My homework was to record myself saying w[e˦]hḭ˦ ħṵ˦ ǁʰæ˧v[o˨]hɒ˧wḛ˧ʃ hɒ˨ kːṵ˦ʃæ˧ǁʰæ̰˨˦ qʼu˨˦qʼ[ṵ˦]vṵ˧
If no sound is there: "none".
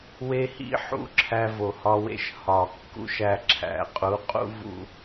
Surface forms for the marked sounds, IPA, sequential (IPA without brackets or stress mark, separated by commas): e˦, o˨, ṵ˦